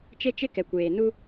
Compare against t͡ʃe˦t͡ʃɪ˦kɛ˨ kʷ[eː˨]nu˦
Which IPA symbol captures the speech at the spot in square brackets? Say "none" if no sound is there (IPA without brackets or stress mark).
eː˨